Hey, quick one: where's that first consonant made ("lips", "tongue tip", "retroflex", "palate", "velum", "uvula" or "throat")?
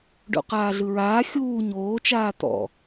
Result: retroflex